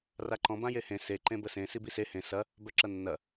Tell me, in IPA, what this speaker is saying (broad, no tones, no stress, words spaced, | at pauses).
raǃɔ̃ bãjehẽ se ǃẽbəsẽ sibise hẽ sɐ | bœǁɐnːɐ